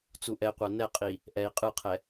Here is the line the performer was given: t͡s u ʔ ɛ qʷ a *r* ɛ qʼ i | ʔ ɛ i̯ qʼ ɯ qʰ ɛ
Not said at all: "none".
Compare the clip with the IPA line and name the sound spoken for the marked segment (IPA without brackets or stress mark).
n